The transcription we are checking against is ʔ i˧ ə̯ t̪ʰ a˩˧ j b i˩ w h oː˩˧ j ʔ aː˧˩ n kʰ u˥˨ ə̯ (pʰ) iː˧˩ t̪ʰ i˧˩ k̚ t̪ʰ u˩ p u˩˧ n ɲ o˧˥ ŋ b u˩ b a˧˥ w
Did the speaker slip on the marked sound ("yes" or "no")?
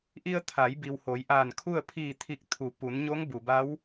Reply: no